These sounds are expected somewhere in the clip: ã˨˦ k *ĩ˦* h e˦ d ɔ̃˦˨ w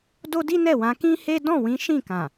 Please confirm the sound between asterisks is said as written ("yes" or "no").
yes